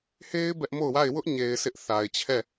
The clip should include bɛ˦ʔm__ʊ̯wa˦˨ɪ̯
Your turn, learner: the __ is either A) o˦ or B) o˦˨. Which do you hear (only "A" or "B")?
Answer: B